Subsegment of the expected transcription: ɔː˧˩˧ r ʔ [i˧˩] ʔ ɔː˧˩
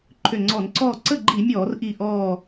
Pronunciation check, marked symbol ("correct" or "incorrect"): correct